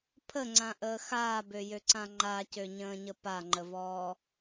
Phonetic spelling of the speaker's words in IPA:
pʰ ə ŋ͡ǀ ã ʔ əː x aː b ø j ø ǀ ã ŋ͡ǃ a c ø ɲ ə̃ː ɲ ə p a ŋ͡ǃ ə v ɔː

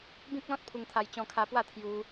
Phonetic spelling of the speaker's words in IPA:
b ĩ˦ k̚ l ɔ̃˦ t̚ pʰ u˧ ŋ t̪ʰ a˧ j t͡ɕ ɔ̃˧ kʰ a˧ p w a˥˧ t̪ʰ j u˧

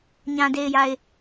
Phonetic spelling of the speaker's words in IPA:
ɲ ã˨ d e˨ ɪ̯ j a˨ ɪ̯

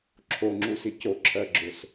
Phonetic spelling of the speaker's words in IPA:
ǁʰ o ŋ͡ǁ u s i c o ǁʰ ɜ ɡ͡ǁ ʊ s

